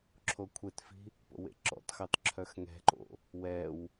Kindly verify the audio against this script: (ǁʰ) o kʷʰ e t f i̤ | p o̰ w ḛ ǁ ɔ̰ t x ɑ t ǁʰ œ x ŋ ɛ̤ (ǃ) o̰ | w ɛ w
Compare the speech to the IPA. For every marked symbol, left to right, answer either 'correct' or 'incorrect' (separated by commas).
correct, correct